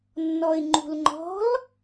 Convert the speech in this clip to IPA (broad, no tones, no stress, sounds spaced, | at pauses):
nː ɔ ɪ̯ ŋ͡ǃ ṳ l ŋ͡ǃ ɔ̤ l